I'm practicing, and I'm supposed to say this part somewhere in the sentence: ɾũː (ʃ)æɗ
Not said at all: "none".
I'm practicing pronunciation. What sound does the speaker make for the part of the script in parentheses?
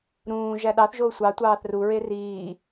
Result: ʒ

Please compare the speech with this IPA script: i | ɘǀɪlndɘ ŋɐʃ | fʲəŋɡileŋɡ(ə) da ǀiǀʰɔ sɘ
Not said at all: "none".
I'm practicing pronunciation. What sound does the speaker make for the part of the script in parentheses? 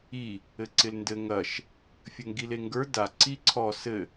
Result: ə˞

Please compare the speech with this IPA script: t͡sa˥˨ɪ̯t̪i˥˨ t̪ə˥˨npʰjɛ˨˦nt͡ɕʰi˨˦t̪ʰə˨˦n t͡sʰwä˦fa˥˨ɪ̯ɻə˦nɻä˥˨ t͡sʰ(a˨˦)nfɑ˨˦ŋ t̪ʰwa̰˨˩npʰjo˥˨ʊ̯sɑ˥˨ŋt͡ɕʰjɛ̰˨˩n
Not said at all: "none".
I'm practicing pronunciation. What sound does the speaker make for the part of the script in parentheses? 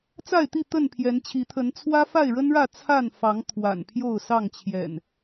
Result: a˥˨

